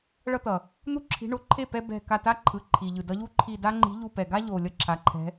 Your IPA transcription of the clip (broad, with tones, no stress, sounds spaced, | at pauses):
ɭ ʌ˦ t̪ ʌ˩ | n̪ u˦ ǁʰ i̤˨˦ ɳ o˨˦ ǃʰ e˥˩ p ɛ˦ b ɛ̤˧˩ k a˧˩ t a˦ ǃʰ ɯ˩ ǃʰ i˩ ʎ ɯ˩ d ʌ˨˦ ʎ u˦ ǃʰ i˧˩ d a˦ ŋ͡ǃ i̤˨˦ ʎ u˧˩ p ɛ˩ ɡ a˦ ʎ o˩ lʲ ʌ˥˩ ǁʰ a˩ ǃʰ ɛ̤˨˦